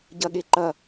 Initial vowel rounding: unrounded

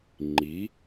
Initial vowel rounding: unrounded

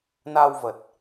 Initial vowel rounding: unrounded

